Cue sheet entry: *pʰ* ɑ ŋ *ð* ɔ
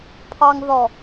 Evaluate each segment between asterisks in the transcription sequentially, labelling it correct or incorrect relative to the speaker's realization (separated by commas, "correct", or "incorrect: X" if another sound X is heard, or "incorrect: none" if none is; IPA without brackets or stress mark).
correct, correct